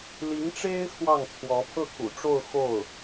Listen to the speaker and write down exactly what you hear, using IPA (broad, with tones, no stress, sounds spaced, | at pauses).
l i˧˥ ŋ ʈ͡ʂ e˥ ɪ̯ x w ɑ˥˩ ŋ t͡sʰ w ɔ˧˥ pʰ ɤ˥˩ kʰ ṵ˨˩ ʈ͡ʂ o˥˧ ʊ̯ x o˥˩ ʊ̯